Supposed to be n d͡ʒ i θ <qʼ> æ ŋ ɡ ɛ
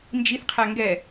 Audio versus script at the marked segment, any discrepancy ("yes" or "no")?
yes